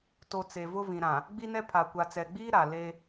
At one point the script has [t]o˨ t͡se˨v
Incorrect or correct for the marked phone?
correct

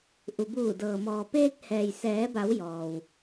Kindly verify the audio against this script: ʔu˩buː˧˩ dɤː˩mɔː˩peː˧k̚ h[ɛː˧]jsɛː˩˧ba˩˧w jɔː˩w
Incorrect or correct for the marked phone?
incorrect: ɛː˩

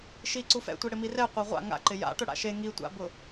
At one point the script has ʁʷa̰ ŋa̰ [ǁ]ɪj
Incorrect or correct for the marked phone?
incorrect: ǃ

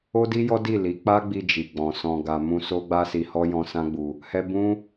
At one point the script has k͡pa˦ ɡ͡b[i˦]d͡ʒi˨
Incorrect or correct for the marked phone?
incorrect: i˧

